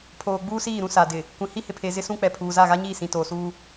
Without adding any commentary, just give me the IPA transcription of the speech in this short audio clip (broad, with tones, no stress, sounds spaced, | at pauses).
pʰ oː˨ ɡ͡b uː˦ s iː˦˨ ɾ ũ˦ s a˨ d ɪ˨ | kʷ ĩ˨ h i˦ h ɪ˨ pʰ e˨ z ɪ˦ s ũ˦ k͡p ɛ˨ pʰ uː˨ z a˦˨ ɣ a˦ ɲ iː˦˨ s ĩ˨ t oː˨ s uː˦